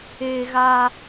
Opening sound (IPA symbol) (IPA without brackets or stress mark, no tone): eː